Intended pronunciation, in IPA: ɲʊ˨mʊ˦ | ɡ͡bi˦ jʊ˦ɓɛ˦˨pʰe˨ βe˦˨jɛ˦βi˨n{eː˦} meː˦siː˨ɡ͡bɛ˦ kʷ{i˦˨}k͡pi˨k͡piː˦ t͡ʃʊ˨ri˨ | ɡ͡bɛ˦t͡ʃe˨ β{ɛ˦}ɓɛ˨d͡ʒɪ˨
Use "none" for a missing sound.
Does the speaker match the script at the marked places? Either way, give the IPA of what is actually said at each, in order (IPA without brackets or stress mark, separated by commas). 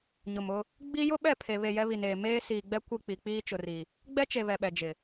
eː˨, i˦˨, ɛ˨